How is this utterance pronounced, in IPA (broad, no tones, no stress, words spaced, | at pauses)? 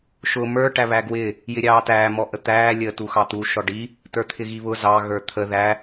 ʃʊ mə˞ ʈæβæɡwɪ | jɪɾʲɑːtæː mɔʔət̪æː lʲəːtuxɑt̪u ʃɔɖi | tə˞t̪ʰɪɣiβʊ zɑ ɣə˞t̪ʰə ðæ